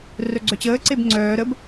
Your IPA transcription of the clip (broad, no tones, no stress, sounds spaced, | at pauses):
r œ ɡ͡ǀ œ t͡ɕ əː ǀ e b ŋ͡ǀ œː ɾ ə b